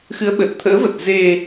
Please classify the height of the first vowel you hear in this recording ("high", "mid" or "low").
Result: high